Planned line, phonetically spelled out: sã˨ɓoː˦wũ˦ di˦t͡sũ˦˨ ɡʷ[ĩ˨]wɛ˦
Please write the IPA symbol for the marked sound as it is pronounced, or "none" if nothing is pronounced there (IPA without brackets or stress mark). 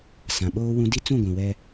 ĩ˨